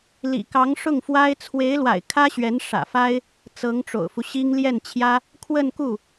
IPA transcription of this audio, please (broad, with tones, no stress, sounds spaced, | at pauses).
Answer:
l ḭ˨˩ k ɑ˧˥ ŋ ʂ ʊ˥˩ ŋ f w a˥ ɪ̯ t͡sʰ w e˧˥ ɪ̯ l w a̰˨˩ ɪ̯ kʰ ä˥ ɕ ɥ ɛ˧˥ n ʂ ä̰˨˩ f a˥ ɪ̯ | t͡s ɤ˧˥ ŋ ʈ͡ʂ o̰˨˩ ʊ̯ f u˦ ɕ i˥ ŋ l j ɛ˥˩ n t͡ɕʰ j ä˥ | kʰ w ə˥˧ n k u˥˩